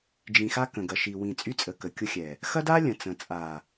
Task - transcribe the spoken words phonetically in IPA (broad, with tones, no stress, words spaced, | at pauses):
d͡ʒĩ˨xa˦ kə̃˨ɡɐ˨ʃi˨ wĩ˨ t͡sʼy˦t͡sʼə˨ kə˨kʲʊ˦xʲɛ˨ | xɐ˦da˦ lʲə̃˨t͡sə̃˨ t͡sʼa˨